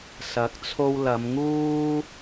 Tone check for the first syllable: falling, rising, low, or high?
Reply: rising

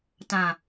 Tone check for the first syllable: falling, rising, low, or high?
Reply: low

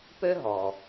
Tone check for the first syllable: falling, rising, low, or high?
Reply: high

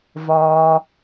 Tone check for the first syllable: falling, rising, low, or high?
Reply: low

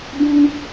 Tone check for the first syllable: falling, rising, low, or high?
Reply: high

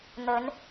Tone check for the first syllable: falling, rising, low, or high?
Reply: rising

